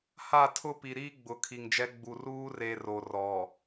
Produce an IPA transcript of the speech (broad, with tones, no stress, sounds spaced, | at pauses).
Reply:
h a˦˨ tʰ ʊ˦ p i˨ ɾ iː˦ ɡ͡b ʊ˨˦ kʰ i˨ ŋ d͡ʒ ɛ˦ ɡ͡b u˨ r uː˦ r e˨ r o˨ r ɔ˨